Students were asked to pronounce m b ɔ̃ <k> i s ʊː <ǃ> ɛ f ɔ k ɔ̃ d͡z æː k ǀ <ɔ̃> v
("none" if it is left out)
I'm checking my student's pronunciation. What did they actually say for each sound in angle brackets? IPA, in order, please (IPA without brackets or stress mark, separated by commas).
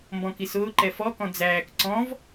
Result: k, ǃ, ɔ̃